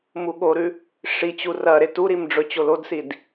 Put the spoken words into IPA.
muɠoɾʉ | ʂit͡ɕu rɐ ɾetuɾim ɖ͡ʐɵt͡ɕo lodsid

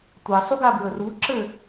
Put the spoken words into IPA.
tʷɘ sˤuɡabɹəru ǁɘ

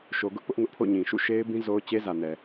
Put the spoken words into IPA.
ʃo˨ɡʊ˦ʔ pʊ˦ʔŋʊ˦ʔpʰo̰˦˨ɲĩ˨ ʃṵ˦˨ʃe˦ɪ̯ bĩ˦zo˦ʊ̯t͡ɕe˦ zä˨ nɛ˨

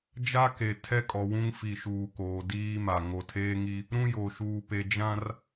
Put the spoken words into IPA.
d͡ʒa˦ke˨ tʰɛ˦kʼɔ˨wũ˦ŋ fi˨ʃuː˨koː˨ diː˦ma˨ ŋo˨tʰeː˦ŋi˦ | ɾũ˦jo˨ʃuː˨pe˨ d͡ʒã˦r

